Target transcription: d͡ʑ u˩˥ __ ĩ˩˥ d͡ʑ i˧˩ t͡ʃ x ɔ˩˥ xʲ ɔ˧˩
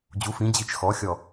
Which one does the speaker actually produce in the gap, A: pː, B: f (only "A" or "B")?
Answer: B